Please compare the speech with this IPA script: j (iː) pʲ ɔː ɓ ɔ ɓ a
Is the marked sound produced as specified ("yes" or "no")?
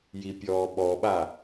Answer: no